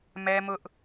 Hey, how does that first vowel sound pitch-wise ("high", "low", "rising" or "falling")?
high